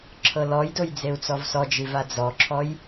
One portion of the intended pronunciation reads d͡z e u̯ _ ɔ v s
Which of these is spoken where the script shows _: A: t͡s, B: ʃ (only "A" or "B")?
A